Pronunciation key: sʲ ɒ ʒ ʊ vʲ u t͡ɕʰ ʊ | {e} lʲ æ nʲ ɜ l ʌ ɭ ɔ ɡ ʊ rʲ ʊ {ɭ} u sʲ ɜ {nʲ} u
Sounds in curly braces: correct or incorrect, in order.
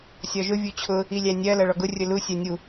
incorrect, incorrect, correct

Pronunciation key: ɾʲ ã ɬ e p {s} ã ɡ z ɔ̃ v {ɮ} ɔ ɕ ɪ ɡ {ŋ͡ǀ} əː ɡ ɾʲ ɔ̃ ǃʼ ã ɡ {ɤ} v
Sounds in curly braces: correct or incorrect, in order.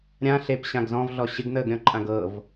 incorrect, correct, incorrect, correct

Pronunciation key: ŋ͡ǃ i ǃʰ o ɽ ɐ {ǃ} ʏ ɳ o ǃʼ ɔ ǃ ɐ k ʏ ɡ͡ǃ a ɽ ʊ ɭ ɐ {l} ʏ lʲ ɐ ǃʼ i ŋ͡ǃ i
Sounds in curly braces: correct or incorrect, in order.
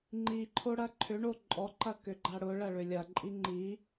incorrect, incorrect

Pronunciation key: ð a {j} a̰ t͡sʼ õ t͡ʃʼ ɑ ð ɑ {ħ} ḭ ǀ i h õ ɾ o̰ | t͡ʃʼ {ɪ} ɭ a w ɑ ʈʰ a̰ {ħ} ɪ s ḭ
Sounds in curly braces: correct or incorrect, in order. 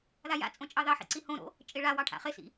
correct, correct, correct, incorrect

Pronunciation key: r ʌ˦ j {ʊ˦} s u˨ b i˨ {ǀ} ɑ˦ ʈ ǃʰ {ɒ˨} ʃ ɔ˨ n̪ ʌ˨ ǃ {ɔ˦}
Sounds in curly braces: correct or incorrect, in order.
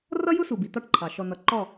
correct, incorrect, incorrect, incorrect

